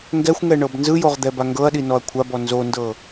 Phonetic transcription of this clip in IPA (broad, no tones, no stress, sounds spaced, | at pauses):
ŋ ɡ ɛ xʷ ŋ ɛ ɳ ɤ b n z ɯ j o ʁ d̪ ɛ b a ŋ ɡ ɤ ɐ̯ ɗ i n ɔ ɐ̯ kʷʰ a b ɔ n z o n d ɤ